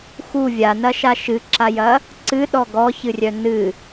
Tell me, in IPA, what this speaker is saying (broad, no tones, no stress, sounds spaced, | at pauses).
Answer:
x u vʲ a n ɐ ʃ a ʃ ɨ ǁ a j ɐ | ǀ ɨ ɗ ɔ ɡ ɔ ç ɨ rʲ œ n ɨ